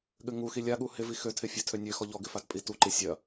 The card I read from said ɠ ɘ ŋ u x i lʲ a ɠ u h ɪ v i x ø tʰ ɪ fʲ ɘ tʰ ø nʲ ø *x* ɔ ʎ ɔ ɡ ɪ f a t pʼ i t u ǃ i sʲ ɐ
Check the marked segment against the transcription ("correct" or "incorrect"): correct